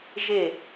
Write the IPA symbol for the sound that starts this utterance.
ʒ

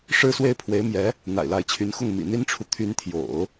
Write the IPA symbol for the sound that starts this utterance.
ʂ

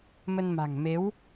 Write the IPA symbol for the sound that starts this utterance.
m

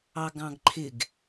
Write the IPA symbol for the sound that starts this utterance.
ɑ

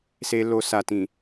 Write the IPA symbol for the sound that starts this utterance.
s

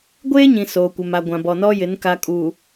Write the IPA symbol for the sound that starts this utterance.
ɡʷ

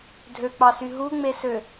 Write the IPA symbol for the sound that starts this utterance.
dʱ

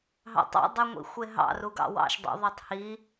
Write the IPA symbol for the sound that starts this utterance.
ɦ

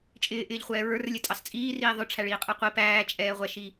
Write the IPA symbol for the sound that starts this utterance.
t͡ʃʼ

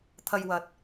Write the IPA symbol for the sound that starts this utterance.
t̪ʰ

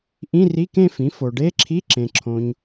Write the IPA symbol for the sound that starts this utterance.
ʔ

